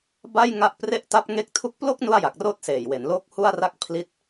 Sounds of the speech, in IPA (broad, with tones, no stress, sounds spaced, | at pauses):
b a˥˩ j ŋ a˦˥ ʔ p r e˥˩ ʔ t a˦˥ p̚ ŋ e˦˥ k̚ tʰ u˦˥ k̚ p l o˥˩ k̚ n u˥˩ a̯ j a˨˩ k̚ r oː˥˩ t̚ s eː˨˩ j w e˩˦ n l oː˦˥ k̚ h u˥˩ a̯ r a˥˩ k̚ pʰ l i˦˥ t̚